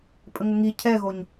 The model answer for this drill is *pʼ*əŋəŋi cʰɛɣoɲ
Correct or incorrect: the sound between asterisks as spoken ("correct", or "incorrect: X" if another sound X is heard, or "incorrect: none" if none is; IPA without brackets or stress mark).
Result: correct